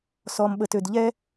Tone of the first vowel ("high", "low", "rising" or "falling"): low